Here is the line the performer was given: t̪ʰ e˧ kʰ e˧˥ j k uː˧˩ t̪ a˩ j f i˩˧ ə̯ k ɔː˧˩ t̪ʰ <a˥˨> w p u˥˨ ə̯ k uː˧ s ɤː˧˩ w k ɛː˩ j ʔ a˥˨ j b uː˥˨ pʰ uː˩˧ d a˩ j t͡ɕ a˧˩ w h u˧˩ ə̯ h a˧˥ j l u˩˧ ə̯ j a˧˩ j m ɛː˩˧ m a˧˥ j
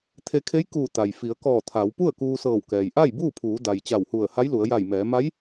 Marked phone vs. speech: incorrect: a˩˧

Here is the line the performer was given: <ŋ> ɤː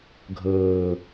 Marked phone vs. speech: incorrect: ɡʱ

